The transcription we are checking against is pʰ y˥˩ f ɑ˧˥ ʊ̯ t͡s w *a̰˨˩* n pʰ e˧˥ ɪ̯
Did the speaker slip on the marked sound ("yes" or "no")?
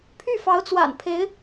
no